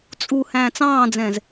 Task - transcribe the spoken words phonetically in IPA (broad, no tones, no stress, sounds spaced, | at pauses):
t͡sʼ u h æ̃ː t͡s ɑ̃ː d͡z ɛ̃ z